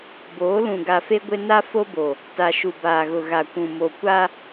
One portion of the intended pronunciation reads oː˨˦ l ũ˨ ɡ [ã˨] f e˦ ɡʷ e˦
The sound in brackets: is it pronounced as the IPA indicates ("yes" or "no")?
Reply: no